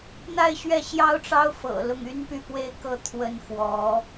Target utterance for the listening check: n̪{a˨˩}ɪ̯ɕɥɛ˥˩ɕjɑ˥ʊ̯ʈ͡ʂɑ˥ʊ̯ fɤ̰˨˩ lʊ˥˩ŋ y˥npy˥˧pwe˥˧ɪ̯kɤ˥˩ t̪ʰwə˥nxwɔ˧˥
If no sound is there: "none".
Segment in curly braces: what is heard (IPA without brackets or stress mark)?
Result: a˥˧